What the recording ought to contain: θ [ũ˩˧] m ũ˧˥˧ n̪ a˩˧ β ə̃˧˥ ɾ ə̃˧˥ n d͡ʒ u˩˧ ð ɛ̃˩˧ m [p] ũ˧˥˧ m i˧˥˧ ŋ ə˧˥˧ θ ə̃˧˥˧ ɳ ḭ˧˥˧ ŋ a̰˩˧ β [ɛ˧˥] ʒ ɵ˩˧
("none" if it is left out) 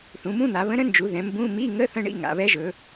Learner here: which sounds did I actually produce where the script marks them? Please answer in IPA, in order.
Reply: ũ˩˧, b, ɛ˧˥

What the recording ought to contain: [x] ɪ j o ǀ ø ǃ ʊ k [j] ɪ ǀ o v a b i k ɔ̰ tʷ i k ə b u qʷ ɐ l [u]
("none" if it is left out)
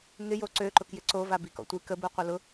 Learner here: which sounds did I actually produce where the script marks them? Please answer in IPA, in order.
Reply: ŋ, j, ʊ

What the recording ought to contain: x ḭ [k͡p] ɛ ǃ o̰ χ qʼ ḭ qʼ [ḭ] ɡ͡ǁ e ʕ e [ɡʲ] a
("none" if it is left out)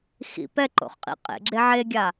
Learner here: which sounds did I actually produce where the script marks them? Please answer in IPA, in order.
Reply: p, ḛ, ɡʲ

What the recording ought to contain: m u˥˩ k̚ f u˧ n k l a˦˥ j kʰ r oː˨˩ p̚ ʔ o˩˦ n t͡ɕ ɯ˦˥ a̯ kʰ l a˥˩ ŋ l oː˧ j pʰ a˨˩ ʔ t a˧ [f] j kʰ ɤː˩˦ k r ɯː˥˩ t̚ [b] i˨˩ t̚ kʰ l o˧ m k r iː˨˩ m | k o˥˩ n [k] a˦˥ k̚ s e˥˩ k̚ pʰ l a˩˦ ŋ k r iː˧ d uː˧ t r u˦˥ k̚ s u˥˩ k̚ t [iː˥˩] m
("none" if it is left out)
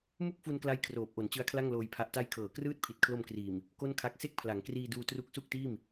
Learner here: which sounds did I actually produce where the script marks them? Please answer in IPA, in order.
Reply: none, pʰ, kʰ, iː˥˩

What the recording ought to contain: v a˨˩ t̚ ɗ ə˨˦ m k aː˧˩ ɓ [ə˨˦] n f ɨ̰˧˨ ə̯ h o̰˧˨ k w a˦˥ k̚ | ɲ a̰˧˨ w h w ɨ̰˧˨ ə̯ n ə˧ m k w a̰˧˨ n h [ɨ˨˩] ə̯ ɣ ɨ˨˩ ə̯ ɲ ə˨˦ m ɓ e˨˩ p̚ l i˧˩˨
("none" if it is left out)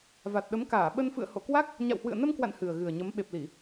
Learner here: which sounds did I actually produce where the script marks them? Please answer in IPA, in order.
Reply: ə˧, ɨ˨˩

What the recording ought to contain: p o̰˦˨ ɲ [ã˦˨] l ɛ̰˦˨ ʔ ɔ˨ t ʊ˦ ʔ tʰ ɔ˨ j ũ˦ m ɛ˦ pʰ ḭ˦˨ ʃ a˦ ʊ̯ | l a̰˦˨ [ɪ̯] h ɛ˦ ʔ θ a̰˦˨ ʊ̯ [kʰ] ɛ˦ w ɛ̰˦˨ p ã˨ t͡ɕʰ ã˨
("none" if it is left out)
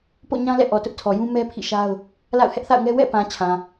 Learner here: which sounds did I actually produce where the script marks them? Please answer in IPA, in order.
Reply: ã˦, ʊ̯, ŋ

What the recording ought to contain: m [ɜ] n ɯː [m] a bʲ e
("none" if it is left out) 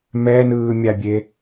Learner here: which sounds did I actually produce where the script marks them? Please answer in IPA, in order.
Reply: ɛ, mʲ

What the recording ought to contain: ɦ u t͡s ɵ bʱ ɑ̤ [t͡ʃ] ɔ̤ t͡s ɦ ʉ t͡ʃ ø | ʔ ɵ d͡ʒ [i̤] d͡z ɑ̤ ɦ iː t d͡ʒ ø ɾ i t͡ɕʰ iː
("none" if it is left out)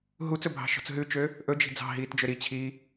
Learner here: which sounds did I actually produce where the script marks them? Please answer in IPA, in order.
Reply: ʃ, i̤

